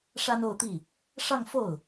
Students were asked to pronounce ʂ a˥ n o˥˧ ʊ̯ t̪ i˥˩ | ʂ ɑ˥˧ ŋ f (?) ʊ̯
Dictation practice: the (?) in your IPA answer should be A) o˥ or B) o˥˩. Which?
B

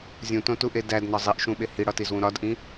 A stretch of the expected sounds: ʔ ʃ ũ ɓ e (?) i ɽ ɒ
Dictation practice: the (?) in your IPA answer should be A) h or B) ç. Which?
A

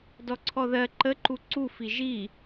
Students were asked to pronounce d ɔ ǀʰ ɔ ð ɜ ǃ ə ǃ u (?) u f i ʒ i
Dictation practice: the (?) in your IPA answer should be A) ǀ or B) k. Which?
A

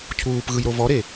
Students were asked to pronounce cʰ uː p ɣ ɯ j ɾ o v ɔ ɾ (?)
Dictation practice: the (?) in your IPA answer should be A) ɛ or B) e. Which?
B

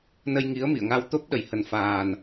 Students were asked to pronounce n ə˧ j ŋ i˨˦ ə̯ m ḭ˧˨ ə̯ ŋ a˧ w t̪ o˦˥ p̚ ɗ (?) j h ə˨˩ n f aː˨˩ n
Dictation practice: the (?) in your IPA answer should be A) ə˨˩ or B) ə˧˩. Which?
B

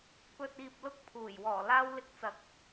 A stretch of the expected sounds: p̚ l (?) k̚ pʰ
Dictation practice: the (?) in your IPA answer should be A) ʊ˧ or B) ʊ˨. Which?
A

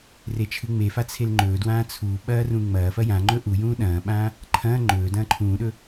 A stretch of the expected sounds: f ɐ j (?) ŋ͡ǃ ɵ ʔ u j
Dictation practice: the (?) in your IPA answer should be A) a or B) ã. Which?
B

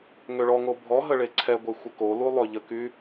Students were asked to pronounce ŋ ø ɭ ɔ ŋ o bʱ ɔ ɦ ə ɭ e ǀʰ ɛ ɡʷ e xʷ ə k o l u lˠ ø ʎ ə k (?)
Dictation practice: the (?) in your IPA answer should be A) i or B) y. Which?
B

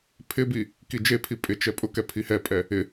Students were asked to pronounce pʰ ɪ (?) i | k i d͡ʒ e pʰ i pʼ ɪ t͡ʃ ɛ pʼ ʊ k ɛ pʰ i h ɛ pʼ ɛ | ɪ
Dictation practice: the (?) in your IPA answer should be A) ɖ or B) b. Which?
B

